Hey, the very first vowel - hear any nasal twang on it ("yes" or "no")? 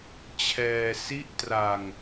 no